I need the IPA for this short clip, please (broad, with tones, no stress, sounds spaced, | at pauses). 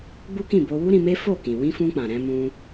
ɡ͡b u˦ k ĩ˦˨ b o˧ w u˦ ɾ ĩ˧ m e˦ f o˦˨ k ĩ˨ w ĩ˧ f ũ˧ k͡p ã˨ ɾ ɛ̃˧ m ũ˧